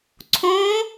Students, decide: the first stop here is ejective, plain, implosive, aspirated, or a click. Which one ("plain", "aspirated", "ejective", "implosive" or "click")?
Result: click